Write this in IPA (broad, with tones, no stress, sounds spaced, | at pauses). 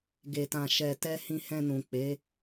ɡ e˧ t ã˧ ʃ ɛ˧ t ɛ˦ h ĩ˧ h ɛ̃˧ n ũ˨ k͡p e˨˦